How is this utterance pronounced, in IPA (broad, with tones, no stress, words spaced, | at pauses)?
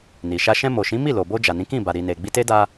ni˨ʃa˧ ʃɛ̃˧mo˨ʃĩ˨˦ mi˦˨lo˨bo˧ d͡ʒa˨nĩ˨˦ kĩ˦˨ba˨ ɾi˨ne˨ ɡ͡bi˧te˦da˧